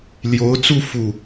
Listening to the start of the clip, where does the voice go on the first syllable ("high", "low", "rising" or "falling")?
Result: rising